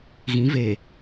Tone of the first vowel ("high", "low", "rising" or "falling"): rising